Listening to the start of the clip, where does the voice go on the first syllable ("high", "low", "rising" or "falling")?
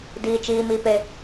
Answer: high